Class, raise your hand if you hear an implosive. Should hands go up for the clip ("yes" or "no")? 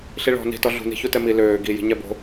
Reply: no